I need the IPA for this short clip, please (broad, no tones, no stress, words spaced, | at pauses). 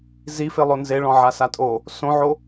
zife lˠonzeɭɔ̃ ʕasatʼo | sõʕo